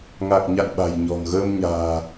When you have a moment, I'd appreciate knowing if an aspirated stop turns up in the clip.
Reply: no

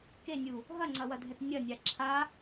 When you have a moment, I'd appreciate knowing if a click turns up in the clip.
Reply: yes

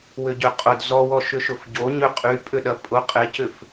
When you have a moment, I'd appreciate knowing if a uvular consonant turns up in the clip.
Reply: yes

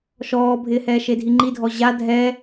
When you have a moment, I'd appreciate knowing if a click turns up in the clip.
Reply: yes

